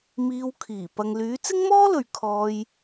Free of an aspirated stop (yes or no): no